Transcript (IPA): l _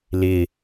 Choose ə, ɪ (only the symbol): ɪ